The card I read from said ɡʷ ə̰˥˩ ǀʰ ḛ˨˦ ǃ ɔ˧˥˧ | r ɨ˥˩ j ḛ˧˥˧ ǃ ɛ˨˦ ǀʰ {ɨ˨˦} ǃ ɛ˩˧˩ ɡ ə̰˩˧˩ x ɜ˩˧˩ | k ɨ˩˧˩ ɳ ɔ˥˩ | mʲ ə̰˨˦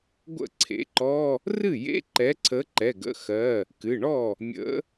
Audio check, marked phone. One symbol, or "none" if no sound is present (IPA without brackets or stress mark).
ə˨˦